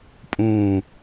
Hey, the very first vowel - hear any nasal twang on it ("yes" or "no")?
yes